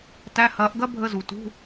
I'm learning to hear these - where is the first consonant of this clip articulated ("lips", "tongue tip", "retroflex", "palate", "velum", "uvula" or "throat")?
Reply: tongue tip